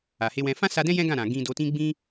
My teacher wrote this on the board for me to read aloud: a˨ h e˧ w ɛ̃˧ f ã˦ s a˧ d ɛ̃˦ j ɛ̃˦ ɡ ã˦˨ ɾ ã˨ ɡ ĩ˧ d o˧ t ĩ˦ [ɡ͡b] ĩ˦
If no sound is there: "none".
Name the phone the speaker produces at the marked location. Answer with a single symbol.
ɡ͡b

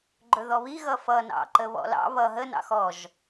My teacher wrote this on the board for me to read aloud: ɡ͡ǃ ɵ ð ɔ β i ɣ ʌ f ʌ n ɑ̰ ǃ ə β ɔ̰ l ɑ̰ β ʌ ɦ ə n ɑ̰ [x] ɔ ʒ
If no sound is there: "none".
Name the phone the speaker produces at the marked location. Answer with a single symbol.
x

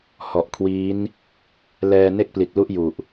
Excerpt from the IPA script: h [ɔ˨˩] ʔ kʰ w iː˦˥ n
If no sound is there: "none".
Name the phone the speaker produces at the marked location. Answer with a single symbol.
ɔ˨˩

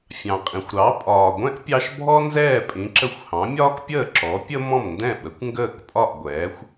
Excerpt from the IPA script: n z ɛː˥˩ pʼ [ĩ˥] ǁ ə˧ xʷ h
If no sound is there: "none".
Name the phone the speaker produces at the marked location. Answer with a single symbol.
ĩ˩˥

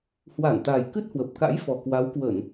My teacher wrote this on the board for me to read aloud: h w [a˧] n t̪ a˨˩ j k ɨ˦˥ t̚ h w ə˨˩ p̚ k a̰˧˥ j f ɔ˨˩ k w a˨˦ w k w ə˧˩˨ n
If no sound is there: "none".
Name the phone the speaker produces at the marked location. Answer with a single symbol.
a˧˩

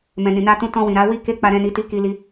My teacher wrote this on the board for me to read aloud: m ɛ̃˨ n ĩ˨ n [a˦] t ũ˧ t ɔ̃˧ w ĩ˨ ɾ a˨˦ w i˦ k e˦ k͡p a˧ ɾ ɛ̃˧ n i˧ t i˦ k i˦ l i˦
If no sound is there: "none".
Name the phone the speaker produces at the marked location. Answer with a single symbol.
a˧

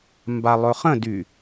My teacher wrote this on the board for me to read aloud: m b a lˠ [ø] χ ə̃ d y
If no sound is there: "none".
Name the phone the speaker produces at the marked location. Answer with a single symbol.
ɵ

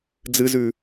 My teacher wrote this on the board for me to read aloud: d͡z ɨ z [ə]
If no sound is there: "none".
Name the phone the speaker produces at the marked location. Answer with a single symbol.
ʉ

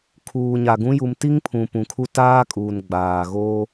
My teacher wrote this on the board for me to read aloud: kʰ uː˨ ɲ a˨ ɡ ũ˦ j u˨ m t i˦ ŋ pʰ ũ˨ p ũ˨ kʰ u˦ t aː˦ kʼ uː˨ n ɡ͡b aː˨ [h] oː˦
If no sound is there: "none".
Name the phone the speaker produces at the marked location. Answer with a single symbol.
ɣ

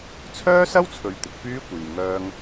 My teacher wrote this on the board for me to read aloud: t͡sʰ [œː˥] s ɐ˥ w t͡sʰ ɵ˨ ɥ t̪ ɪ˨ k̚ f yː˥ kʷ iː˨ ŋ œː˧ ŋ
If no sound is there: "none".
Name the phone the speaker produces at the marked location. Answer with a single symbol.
œː˥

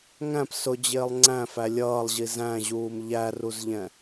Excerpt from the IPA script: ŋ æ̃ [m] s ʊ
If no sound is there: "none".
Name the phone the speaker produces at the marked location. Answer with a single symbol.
p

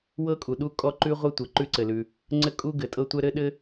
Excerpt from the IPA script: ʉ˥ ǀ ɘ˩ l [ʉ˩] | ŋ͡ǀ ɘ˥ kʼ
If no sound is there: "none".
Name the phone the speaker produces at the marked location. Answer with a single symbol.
ʉ˩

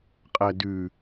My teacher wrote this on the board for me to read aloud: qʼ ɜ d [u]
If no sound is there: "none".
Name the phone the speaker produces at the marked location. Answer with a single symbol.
ʉ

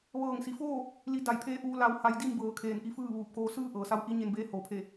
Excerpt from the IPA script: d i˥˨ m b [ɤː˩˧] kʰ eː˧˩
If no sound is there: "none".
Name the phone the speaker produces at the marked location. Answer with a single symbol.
ɤː˩˧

